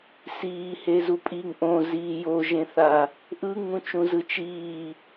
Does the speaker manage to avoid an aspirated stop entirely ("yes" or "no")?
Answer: yes